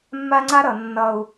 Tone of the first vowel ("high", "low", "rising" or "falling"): high